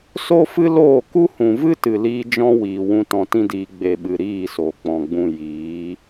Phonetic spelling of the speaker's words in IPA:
s o˦ f ɨ˦ l oː˦˨ k u˦ h ũ˨ v ɨ˦ t ɨ˨ l iː˧ d͡ʒ ɔ̃˦ w iː˨ w ũ˧ t ɔ̃˧ t ĩ˦ d iː˧ ɡ͡b e˨ ɓ ɨ˨ ɾ iː˦˨ s o˨ k͡p ɔ̃˨ ɡ͡b ũ˧ j iː˨˦

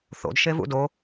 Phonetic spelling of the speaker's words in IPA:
θ o̰ d ʃ e v ṵ d o

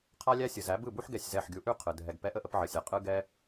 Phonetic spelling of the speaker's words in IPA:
qʰ a˦ lʲ æ˦ sʲ ɯ˨ z æ˨˦ b ɯ˦˨ b u˦ ħ ɡ ɛ˦˨ sʲ z ɛ˦˨ ħ ɡʲ u˧ ʔ ʉ˦˨ qʰ ɯ˨ dʱ ɛ˨ ɡ p ɛ˧ ʔ ə˦ ʔ ə˧ p ʕ ə˨ sʲ a˨ qʼ ɯ˦ ɡ ɛ˦

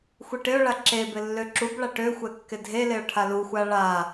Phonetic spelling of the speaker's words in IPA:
xʷ i ʈ ɪ ʊ̯ ɭ a ǁ e b ɪ lː ø ǁ u b ɭ a ʈ ø xʷ ɛ kː ɪ dʱ e l ɪ ʊ̯ ʈʰ a l u xʷ a ɭ a

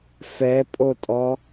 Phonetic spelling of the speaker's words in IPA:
f ɛ pʼ o tʼ ɔ

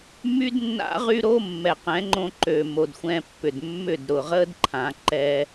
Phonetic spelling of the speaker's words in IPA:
m y˦ d nː a̰˦ ʁ y˦ ɾ o˦ mː ɛ˨ q ɛ̃˨˦ ŋ͡ǃ õ˧ ǃ ø˨ m o˨ d xʷ ɛ̃˧ pː ʏ˨ d mː ʏ˦˨ d ɾ ʊ˨ ʁ ə˦ d ǃʰ ã˨˦ ǃ ɛ˦

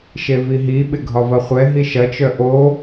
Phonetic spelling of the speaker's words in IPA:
ʃ e v i ɦ i ɓ ɪ ɡʱ ɒ v ɐ χʷ ɛ ɦ i ʃ ɐ t͡ʃ œ ʔ o

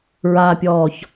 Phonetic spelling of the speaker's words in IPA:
ɹ a pʲ ɔː ç

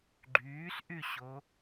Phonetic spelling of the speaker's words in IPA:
ɡ͡ǃ yː s ʔ y ɕ o

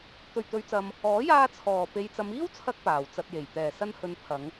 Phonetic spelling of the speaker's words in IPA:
t̪ ɵ˨˩ ɥ t̪ ɵ˨˧ ɥ t͡s ɐ˨ m | ɔː˨˥ j aː˧ t͡sʰ ɔː˨˩ p e˨ j t͡s ɐ˨˧ m iː˥ w t͡sʰ ɐ˧ k̚ p aː˨˩ w t͡s ɐ˧ t̚ j e˨˩ j t̪ ɛː˨˩ s ɐ˧ n h ɵ˨˧ n pʰ ɐ˨˧ ŋ

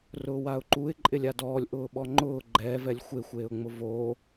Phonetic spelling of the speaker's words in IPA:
r ʊː w a ʊ̯ ǃ u ɪ̯ ǃʼ ɪ lʲ a d ɔː lʲ ʔ ʊː ɓ ɔ ŋ͡ǃ ʊː ɡ͡ǃ ɛː v ɛ lʲ xʷ e xʷ eː ʊ̯ ŋ͡m ʊ v oː

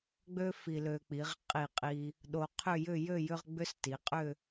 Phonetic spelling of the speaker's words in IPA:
ɡ͡b ø˥ f i˧ l ø˧ k͡p i˩˧ ʁ qʼ i˧˩ qʼ i˧ | ɗ o˧ qʰ ʏ˥˧ j ʏ˥˧ j ø˥˧ j ʏ˥ ʁ ɡ͡b ʏ˥ s t i˩˧ qʼ ʏ˥˧

